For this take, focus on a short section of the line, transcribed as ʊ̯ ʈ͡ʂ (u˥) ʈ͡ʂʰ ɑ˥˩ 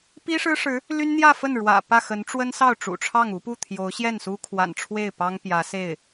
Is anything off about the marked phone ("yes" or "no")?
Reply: yes